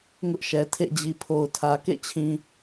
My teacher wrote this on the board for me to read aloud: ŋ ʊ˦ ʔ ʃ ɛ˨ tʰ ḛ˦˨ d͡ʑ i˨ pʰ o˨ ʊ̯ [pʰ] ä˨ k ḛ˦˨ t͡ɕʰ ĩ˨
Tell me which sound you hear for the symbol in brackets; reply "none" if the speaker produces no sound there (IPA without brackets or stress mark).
tʰ